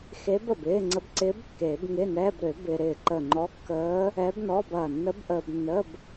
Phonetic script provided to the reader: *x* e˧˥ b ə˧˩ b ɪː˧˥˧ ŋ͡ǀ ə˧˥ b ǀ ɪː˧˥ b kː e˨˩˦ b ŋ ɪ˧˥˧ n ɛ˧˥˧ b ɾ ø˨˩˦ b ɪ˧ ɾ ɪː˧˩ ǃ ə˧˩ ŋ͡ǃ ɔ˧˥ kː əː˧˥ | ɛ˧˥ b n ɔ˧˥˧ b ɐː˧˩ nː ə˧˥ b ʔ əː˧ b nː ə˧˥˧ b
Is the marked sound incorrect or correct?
correct